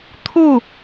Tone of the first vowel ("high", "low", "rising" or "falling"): falling